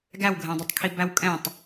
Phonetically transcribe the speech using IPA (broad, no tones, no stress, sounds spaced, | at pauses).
ɡ æ w ɡʱ ɛ̃ dˤ i tˤ kʰ i b æ w kʼ ɛ̃ tˤ